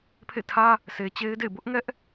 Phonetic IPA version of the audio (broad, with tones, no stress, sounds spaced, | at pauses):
pʰ ḛ˦˨ tʰ ä˦ | sʰ e˨ t͡ɕ e˦ ɪ̯ d ḛ˦˨ ɪ̯ b ʊ˦ ʔ ŋ ɛ˦ ʔ